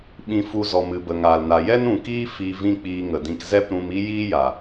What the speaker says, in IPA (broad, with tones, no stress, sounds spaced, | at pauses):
ɓ ĩ˧ f u˧ z ɔ˨ m ɨ˨ b ə˨ ŋ aː˨ l n a˨ j ɛ˦ n ũ˨ k iː˦ f i˧ v ĩ˦ k͡p iː˧ ŋ ə˨ d ĩ˧ k z ɛ˦ p ɾ ũ˧ m i˦ j iː˦ j a˨